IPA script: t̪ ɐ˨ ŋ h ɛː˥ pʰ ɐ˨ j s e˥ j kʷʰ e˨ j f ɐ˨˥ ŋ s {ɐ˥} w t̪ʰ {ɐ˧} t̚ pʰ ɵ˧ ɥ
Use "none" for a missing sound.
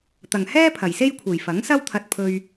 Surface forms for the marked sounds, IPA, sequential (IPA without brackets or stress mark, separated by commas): ɐ˥, ɐ˧